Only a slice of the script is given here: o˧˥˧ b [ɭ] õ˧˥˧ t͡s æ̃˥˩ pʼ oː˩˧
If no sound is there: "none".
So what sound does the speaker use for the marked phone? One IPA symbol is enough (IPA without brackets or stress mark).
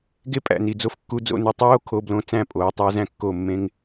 l